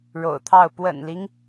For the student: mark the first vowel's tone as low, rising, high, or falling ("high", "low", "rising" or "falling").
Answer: low